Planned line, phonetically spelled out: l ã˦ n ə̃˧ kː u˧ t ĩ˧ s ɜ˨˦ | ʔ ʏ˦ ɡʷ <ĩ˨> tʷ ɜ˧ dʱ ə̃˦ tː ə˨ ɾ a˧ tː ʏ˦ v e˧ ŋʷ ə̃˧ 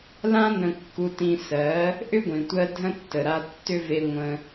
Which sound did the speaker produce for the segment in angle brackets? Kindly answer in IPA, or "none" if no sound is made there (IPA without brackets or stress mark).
ĩ˨